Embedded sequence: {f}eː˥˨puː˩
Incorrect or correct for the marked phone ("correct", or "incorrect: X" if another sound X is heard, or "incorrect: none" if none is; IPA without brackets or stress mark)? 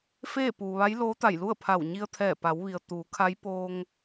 correct